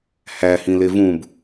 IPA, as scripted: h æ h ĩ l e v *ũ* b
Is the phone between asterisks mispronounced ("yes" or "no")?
no